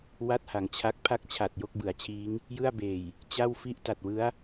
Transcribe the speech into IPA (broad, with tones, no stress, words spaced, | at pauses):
wa˥˩t̚ha˩˦ŋ t͡ɕʰa˦˥k̚ pʰa˥˩k̚t͡ɕʰa˨˩t̚ jo˥˩k̚bɯ˩˦a̯t͡ɕʰiː˦˥ŋ | jɯ˥˩a̯beː˨˩j | t͡ɕa˥˩wfi˥˩ʔ ta˨˩t̚wɯ˦˥a̯